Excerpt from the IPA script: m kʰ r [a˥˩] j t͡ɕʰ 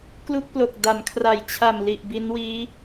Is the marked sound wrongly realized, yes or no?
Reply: yes